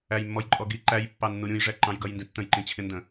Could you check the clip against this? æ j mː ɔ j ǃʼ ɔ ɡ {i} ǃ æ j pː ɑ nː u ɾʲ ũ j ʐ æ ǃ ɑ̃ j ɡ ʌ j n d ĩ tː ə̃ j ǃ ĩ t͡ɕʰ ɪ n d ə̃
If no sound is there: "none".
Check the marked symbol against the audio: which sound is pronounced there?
i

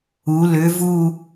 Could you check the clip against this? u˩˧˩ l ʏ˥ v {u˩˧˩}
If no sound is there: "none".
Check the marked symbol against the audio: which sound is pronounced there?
u˥˧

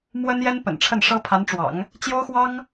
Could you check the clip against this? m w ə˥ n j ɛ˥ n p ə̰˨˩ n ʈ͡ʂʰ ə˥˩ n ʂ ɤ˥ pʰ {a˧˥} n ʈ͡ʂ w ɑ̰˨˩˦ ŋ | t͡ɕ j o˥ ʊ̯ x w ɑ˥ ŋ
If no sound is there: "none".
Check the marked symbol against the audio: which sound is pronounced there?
a˧˥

